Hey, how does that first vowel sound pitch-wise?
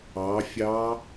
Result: rising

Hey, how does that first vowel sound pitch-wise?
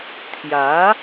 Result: rising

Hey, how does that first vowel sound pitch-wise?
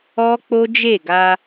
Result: high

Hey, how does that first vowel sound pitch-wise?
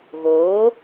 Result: rising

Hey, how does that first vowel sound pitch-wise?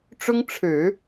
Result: high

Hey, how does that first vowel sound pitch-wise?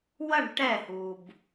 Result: falling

